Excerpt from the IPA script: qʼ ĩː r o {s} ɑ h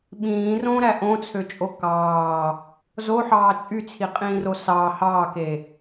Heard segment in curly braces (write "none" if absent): s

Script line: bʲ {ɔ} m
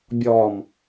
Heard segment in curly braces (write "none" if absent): ɔ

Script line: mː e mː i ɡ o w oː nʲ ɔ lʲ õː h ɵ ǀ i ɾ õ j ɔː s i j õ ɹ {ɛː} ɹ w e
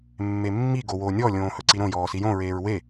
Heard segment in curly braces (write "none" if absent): eː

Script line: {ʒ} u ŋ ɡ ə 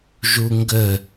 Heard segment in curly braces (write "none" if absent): ʒ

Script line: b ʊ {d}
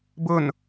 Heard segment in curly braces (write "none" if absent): n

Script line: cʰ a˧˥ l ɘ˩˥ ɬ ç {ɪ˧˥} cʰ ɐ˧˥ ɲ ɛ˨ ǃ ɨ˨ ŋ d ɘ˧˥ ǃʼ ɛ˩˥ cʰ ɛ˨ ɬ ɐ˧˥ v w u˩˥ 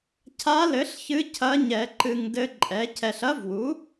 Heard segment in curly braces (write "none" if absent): ɨ˧˥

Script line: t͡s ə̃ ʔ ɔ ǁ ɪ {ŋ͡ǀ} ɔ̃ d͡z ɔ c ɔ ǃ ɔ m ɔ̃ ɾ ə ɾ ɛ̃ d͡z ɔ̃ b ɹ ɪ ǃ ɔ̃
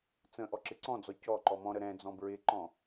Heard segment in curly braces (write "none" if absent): ǀ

